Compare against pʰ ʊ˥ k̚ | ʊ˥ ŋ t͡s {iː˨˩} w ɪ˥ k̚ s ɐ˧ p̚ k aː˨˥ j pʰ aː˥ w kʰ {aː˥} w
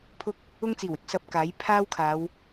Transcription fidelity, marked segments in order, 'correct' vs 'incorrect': correct, incorrect

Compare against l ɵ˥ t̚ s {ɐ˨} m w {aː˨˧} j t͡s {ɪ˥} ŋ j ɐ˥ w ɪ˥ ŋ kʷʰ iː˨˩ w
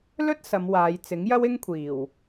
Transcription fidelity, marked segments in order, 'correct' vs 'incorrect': incorrect, correct, incorrect

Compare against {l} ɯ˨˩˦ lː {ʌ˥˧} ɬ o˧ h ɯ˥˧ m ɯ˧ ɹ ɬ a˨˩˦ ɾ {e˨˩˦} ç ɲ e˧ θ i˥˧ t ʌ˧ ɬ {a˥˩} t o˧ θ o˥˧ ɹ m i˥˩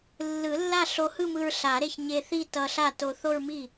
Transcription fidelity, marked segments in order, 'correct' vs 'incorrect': incorrect, incorrect, incorrect, correct

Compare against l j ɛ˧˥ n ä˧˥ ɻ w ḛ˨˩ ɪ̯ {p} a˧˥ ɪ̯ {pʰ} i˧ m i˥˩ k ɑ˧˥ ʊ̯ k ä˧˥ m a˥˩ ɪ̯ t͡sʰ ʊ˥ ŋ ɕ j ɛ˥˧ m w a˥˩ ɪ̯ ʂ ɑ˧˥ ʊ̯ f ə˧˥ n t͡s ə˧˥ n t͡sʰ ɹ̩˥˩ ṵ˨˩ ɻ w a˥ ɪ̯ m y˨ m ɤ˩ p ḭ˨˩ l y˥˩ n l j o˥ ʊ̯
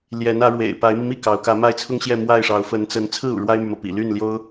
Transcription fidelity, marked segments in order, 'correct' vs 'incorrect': correct, incorrect

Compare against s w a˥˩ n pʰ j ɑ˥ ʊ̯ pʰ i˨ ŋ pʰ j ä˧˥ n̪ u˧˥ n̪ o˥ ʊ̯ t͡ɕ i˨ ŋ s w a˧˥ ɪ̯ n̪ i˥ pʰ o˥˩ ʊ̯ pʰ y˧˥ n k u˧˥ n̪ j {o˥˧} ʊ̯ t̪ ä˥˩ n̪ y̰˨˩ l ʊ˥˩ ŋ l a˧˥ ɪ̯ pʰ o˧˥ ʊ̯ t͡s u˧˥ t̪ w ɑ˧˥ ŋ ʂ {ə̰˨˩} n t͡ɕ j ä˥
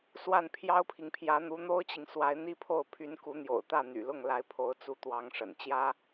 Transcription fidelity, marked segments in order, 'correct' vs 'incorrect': incorrect, correct

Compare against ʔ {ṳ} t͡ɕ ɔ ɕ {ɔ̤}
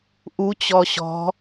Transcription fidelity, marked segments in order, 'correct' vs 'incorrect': incorrect, correct

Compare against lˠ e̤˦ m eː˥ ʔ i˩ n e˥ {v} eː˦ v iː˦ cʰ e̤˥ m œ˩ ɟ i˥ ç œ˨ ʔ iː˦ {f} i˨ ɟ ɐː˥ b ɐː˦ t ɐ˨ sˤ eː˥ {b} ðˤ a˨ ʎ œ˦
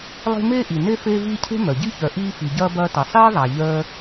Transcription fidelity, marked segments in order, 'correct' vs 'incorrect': incorrect, correct, incorrect

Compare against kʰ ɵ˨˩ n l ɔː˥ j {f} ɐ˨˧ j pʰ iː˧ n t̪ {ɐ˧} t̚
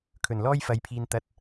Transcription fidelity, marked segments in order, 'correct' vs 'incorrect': correct, correct

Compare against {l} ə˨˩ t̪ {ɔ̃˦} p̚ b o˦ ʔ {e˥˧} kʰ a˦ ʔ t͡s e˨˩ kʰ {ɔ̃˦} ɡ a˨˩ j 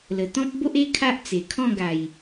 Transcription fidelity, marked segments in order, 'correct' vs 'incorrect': correct, correct, incorrect, incorrect

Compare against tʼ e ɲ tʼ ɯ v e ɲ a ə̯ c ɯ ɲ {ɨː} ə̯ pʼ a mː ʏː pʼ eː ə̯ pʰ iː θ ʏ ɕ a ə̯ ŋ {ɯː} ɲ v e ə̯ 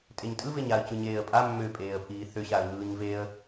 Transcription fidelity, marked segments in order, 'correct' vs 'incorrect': incorrect, correct

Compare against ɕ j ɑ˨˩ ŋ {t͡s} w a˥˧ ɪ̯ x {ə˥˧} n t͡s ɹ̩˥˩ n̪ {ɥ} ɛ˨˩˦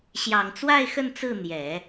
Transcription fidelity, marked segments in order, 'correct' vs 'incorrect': correct, correct, incorrect

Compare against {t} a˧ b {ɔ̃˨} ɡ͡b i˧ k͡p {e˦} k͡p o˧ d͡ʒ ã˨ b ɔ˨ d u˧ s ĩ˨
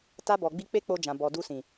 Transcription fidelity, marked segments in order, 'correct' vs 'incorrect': correct, incorrect, correct

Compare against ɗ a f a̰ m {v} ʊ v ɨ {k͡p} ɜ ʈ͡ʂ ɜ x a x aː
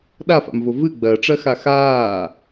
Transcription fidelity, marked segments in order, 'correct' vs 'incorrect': correct, incorrect

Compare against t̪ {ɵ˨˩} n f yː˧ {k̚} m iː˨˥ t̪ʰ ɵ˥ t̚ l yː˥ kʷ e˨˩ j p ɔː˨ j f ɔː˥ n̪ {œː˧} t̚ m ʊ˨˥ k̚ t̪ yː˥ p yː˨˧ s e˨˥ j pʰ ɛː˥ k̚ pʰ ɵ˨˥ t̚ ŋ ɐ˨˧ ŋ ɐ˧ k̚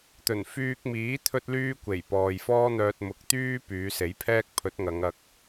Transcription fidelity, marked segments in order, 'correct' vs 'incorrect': correct, correct, correct

